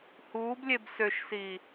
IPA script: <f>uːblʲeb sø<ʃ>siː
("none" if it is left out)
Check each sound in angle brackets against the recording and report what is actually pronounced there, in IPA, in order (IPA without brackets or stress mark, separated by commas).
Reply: h, ʃ